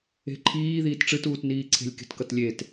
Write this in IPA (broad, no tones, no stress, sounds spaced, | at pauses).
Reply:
e̤ ǃʰ iː ð iː t ʈ͡ʂ ɨ t uː t n iː ǀʰ e̤ lʲ k e̤ t k ʌ t lʲ e t